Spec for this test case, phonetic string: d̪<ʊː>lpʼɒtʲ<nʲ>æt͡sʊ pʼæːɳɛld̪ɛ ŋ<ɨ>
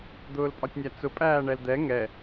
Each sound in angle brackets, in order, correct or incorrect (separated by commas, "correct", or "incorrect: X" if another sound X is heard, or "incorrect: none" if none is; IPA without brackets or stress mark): correct, correct, incorrect: ɛ